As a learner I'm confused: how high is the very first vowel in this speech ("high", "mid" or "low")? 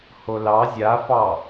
mid